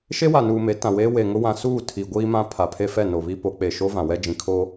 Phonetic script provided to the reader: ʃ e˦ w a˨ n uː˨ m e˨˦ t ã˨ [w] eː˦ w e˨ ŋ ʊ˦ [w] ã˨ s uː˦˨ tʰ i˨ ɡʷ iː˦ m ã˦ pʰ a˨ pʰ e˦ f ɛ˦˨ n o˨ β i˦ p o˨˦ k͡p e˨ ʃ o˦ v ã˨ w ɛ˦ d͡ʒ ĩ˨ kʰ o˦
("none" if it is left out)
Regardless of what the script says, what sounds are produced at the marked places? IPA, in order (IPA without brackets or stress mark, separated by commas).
w, w